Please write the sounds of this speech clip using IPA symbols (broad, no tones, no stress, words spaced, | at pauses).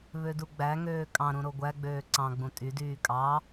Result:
βøduɡ͡bæŋøː kʼɑ̃ɾũ ɾoɡʷæɡ͡bøː ǀɑ̃ɡ͡bũ tʼydyː kʼɑ